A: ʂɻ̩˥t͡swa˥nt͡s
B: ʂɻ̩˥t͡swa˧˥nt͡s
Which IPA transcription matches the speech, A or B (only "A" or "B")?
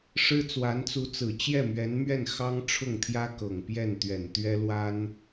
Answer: B